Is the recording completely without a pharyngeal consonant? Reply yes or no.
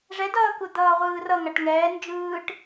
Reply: yes